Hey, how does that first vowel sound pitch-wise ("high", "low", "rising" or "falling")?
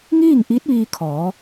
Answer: falling